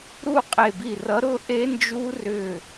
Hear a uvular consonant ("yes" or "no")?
yes